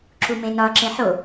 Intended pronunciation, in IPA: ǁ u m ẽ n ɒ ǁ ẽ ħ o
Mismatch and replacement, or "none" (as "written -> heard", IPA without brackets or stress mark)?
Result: none